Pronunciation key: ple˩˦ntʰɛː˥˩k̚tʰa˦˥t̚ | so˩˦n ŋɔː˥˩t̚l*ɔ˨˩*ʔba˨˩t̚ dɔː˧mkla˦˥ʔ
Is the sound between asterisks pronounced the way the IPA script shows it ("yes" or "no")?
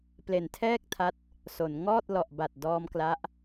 yes